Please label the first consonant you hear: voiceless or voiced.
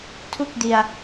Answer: voiceless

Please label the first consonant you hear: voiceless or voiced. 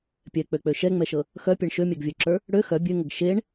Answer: voiceless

